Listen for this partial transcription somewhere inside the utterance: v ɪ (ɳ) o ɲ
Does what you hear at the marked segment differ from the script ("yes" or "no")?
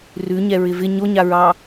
yes